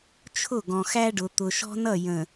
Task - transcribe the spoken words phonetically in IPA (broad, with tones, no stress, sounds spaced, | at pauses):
t͡ʃʰ ʊ˦˨ ɡ ɔ̃˨ x æ˦ ɖ ʊ˨ t̪ ʊ˨ ʃ ɔ̤˦ n ʌ˦˨ j ə̃˨